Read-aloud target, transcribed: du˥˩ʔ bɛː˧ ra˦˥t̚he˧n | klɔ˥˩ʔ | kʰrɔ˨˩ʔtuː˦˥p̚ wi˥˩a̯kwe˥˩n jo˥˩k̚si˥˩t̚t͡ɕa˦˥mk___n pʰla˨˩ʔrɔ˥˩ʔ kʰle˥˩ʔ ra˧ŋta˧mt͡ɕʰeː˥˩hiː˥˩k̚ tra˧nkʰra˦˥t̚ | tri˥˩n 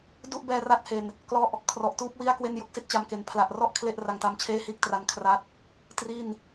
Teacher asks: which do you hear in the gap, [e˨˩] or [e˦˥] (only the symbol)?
e˨˩